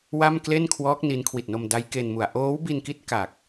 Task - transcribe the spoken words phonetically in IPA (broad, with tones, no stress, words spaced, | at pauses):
wa˥˩m kle˥˩nkʰwɔː˦˥k̚ ni˦˥nkʰwi˨˩t̚no˧m da˦˥jke˧nmu˨˩a̯ ʔoː˦˥wbi˧nki˦˥t̚ ka˨˩k̚